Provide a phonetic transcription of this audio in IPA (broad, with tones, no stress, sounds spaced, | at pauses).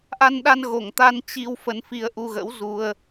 ʔ a˧ n ɗ a˧ n ɣ o˨˩ ŋ t̪ a˧ n t͡ɕ i˧ w f ə˧ n f i˧ ə̯ ʔ u˧ ɣ ə̰˧˥ w z u˧ ə̯